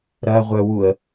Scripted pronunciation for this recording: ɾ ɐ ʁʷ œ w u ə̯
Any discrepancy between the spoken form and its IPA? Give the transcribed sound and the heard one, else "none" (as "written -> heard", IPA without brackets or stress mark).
none